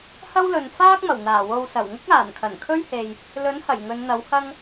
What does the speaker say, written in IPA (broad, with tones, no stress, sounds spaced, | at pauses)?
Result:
h ɐ˥ w l ɵ˨ n f aː˥ k̚ m ɐ˨˩ w n̪ aː˨˩ w o˨ w s ɐ˨˩ w ŋ ʊ˥ k̚ aː˨˩ n kʰ ɐ˨˩ n kʰ ɵ˥ ɥ h e˨ j | l ɵ˨˥ n h ɐ˨˩ j ŋ ɵ˨˧ n n̪ ɐ˨˥ w h ɐ˥ ŋ